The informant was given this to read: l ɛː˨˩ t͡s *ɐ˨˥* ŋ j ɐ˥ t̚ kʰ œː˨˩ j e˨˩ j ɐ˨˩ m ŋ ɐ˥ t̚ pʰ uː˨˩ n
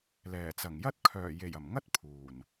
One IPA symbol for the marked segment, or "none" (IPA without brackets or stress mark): ɐ˨˩